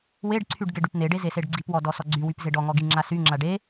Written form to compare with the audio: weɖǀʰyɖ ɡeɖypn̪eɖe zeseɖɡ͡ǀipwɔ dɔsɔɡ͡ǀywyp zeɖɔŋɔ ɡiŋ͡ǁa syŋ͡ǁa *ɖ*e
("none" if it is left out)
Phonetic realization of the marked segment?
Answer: ɖ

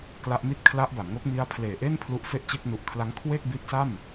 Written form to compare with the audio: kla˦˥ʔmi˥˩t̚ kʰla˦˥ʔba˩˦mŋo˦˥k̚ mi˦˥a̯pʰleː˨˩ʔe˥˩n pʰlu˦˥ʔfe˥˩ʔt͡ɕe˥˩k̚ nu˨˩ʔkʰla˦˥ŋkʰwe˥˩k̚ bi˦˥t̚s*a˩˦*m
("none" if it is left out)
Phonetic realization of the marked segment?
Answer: a˥˩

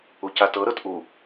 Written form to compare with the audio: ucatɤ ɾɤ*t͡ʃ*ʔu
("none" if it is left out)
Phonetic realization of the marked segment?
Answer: t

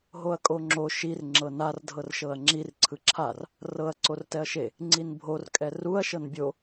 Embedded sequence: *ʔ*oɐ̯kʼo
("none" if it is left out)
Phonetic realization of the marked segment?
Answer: ɦ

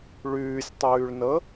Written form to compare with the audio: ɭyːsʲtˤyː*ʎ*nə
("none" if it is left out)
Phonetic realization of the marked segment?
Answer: ɭ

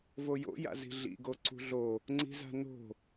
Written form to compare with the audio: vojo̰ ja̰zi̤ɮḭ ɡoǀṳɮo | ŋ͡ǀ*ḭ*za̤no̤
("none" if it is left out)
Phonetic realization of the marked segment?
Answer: i̤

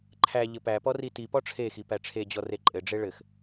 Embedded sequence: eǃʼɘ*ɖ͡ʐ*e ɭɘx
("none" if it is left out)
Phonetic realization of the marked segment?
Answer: ɖ͡ʐ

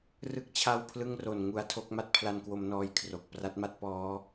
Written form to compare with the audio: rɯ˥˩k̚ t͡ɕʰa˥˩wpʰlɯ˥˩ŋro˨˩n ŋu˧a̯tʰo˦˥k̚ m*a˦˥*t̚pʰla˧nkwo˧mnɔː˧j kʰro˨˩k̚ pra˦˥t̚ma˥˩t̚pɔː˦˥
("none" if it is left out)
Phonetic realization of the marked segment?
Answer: a˦˥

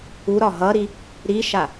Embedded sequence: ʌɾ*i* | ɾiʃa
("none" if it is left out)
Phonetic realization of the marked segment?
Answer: i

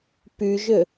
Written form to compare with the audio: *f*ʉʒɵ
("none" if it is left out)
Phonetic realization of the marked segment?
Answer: p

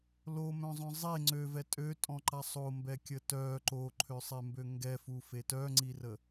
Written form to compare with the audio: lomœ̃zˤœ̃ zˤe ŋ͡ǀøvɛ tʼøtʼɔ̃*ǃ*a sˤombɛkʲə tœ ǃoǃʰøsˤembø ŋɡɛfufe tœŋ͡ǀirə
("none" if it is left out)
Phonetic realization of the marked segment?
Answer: ǃ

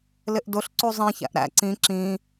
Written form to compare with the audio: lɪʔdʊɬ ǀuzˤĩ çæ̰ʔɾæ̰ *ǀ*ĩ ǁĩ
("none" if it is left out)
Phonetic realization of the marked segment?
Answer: ǀ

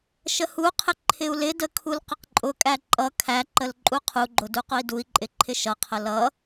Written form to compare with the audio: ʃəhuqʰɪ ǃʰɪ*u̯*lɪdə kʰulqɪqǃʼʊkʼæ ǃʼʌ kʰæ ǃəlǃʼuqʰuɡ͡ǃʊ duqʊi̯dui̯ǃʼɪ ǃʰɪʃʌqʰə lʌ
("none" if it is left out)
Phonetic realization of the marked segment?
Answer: u̯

